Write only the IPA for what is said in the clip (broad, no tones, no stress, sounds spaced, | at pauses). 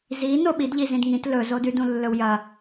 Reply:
z i n o ɓ i d ʎ i z ĩ d ŋ ĩ t l ɵ z o d ʉ d ũ lː ɵ w j ɐ